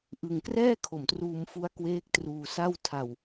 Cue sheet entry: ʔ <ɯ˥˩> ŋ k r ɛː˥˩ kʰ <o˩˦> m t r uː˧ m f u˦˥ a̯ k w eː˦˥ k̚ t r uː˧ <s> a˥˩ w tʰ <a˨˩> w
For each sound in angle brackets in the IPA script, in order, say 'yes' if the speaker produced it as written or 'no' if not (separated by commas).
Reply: no, no, yes, no